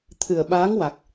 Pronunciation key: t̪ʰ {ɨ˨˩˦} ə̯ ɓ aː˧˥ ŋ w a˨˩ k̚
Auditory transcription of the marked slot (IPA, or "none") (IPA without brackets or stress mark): ɨ˨˩